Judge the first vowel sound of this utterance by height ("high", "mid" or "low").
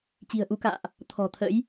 high